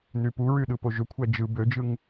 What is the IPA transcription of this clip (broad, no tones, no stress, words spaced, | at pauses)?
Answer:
nypuɹy ɗɯpoʒøkʷʰæ d͡ʒɯ bød͡ʒɯŋ